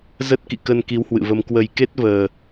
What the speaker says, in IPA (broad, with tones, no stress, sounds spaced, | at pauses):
z ə˦˥ t̚ k ḭ˧˨ k ə˧ n k i˨˦ w h w ɨ̰˧˨ v ə˧ m k w ə˨˩ j k e˦˥ t̚ v əː˨˩